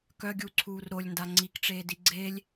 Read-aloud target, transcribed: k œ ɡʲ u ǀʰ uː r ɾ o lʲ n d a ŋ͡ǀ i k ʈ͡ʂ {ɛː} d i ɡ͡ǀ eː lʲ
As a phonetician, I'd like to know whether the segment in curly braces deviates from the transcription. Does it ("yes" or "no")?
yes